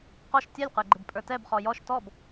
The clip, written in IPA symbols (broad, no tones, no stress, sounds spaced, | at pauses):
q ɔ ʃ tʲ ɛ lʲ q ə˞ ɡ͡ǃ ɪ b pʼ ə˞ t ɛ b χ ɔ j ɔ ʃ t ɔ b